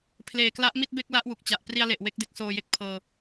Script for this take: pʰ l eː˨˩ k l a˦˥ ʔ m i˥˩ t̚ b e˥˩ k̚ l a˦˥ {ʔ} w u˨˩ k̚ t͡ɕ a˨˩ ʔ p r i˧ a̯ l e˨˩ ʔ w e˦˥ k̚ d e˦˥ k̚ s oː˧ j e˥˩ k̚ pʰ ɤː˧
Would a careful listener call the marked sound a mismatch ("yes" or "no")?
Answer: no